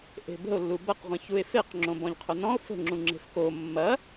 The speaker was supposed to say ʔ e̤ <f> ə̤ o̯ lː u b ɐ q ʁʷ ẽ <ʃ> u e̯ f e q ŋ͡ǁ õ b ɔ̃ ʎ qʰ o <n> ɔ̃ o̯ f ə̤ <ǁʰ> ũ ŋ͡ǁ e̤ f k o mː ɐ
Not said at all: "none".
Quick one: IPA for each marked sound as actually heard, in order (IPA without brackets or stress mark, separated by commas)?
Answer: b, ç, n, ŋ͡ǁ